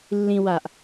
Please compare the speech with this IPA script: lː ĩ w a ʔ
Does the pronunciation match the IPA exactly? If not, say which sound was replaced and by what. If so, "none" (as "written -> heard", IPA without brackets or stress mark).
none